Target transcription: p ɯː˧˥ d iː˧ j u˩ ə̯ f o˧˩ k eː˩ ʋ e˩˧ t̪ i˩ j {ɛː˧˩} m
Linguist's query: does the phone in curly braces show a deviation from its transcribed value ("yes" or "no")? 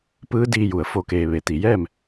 yes